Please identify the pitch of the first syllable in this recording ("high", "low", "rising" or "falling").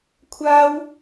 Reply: high